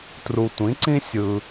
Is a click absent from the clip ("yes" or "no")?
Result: no